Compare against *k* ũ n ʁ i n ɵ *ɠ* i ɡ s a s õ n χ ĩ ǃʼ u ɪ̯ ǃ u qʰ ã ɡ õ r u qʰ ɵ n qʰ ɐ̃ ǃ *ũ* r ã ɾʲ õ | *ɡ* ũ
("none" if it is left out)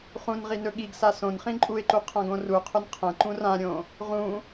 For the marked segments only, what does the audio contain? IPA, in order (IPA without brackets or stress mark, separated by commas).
χ, ɠ, ũ, ʁ